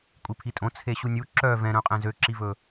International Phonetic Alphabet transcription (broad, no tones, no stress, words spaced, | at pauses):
kʷʼipʰitʼõ t͡sʰeɕunʲu ǁœ vɛ̃ɾœ̃qʼɛ̃ zøǁivɵ